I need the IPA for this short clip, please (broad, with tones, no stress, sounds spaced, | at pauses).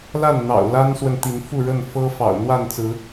l a˥˨ n n̪ ɑ̰˨˩ ʊ̯ l a˦ n s w ə˨ n t̪ i˨˦ n f u˥˨ ɻ ə˥˨ n f ɤ˦ f ɑ̰˨˩ ʊ̯ n̪ w a˥˨ n t͡s ɹ̩˨˦